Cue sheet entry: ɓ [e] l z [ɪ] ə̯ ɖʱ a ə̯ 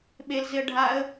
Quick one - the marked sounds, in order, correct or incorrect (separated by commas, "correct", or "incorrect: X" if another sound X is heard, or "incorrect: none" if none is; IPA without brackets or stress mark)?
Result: correct, correct